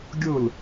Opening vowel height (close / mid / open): close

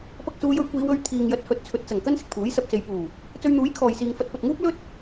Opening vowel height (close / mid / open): open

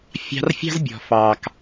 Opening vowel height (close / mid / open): open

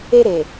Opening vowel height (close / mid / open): mid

